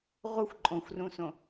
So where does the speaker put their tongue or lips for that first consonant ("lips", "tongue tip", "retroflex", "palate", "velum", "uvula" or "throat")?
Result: uvula